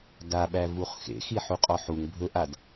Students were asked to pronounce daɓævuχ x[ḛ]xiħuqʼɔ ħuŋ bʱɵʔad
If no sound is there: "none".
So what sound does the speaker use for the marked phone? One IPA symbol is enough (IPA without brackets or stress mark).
ḛ